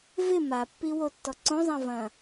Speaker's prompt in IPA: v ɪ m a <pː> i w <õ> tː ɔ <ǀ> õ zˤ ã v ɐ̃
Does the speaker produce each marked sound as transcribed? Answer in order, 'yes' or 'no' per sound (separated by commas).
yes, no, yes